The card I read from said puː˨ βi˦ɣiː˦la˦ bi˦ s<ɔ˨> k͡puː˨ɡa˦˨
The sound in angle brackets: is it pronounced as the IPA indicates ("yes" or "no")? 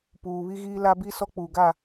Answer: no